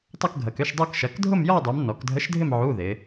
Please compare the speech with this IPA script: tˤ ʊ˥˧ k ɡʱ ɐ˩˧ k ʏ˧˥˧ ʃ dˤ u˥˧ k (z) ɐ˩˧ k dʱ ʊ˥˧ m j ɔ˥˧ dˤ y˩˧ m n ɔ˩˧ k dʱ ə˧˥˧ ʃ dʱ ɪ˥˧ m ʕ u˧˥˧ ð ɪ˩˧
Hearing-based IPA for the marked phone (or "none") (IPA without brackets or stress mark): ʃ